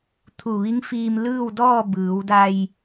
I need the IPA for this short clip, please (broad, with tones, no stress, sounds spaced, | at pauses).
t̪ʰ u˧˩ ʋ i˧˥ ŋ f iː˧ m l ɯː˥˨ w d ɔː˥˨ b ɯː˩˧ w d a˧ j